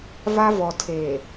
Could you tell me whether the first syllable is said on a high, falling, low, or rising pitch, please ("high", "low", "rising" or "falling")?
high